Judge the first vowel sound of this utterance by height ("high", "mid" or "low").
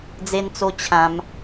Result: mid